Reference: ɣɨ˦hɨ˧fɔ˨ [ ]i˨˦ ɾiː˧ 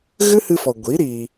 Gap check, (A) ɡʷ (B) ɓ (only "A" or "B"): A